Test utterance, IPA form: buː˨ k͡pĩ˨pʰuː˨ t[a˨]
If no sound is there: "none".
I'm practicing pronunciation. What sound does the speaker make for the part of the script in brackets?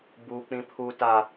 a˨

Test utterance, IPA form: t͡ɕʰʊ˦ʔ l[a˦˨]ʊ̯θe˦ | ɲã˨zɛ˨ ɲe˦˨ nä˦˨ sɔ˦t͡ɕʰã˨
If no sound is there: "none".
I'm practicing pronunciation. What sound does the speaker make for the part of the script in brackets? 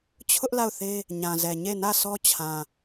a˦˨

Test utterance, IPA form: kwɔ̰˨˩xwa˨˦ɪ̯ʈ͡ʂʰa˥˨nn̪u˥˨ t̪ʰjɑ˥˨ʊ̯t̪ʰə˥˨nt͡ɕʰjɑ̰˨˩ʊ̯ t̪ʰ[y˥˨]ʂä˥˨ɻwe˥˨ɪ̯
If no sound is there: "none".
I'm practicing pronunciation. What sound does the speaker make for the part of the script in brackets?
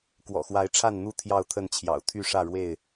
y˥˨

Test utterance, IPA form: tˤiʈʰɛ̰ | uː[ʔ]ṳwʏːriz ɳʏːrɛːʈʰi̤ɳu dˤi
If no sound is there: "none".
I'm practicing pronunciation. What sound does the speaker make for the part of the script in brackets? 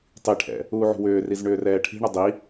ʕ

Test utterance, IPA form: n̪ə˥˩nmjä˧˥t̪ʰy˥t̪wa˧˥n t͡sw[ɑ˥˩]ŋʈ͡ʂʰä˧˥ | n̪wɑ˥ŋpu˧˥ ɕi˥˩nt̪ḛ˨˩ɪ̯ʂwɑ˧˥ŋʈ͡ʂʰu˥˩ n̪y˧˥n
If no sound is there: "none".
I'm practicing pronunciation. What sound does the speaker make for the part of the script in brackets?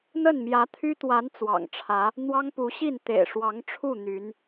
ɑ̰˨˩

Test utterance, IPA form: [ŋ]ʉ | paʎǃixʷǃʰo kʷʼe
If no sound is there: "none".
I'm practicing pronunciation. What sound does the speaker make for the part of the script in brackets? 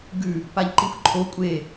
ɡ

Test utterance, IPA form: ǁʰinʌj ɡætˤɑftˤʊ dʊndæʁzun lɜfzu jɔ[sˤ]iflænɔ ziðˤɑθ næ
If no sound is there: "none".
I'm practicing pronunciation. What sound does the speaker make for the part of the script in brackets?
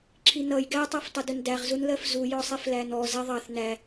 sˤ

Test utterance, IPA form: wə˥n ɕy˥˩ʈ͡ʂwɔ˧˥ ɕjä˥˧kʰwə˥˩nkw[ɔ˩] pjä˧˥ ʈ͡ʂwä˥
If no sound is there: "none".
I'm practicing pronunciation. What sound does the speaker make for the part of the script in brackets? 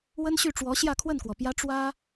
ɔ˩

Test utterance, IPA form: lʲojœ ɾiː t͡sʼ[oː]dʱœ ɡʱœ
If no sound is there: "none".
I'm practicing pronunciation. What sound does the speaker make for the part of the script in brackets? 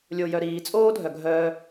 oː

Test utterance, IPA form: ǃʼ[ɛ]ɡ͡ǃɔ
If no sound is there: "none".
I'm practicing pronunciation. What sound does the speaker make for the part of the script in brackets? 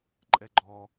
ɛ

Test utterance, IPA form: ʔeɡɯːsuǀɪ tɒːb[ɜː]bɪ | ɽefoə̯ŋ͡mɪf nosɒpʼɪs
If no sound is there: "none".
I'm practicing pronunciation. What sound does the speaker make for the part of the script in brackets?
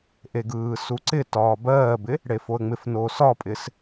ɜː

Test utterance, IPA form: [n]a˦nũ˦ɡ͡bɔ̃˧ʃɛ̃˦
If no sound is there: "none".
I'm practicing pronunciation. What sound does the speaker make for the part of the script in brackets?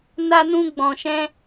n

